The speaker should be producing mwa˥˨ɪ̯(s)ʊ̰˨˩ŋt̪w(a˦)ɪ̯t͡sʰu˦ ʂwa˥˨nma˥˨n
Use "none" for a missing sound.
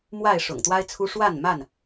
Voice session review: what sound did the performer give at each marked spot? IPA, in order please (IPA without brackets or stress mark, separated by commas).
ʂ, a˦